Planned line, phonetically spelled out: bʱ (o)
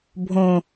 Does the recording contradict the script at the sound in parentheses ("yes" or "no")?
yes